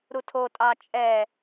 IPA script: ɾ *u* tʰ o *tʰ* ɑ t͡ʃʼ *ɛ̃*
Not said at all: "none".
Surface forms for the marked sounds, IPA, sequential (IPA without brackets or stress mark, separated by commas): u, tʼ, ɛ